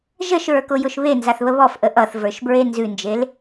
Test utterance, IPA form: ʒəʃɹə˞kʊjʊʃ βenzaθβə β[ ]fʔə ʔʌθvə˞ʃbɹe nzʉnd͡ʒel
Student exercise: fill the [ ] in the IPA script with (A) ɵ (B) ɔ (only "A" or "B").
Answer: B